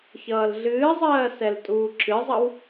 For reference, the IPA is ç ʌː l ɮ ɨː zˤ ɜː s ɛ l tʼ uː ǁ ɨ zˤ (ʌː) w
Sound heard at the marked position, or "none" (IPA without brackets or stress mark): ʌ